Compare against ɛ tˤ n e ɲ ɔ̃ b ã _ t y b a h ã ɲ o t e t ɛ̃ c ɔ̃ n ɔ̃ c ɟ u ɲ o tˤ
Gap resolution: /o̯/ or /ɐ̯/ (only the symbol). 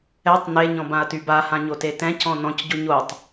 ɐ̯